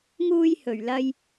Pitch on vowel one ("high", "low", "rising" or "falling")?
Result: high